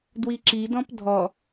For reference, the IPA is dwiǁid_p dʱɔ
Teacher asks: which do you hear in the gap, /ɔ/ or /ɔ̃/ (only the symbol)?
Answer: ɔ̃